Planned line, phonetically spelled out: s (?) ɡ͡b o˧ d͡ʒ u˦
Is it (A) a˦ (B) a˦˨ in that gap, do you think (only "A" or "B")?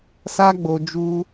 A